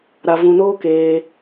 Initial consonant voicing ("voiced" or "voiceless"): voiced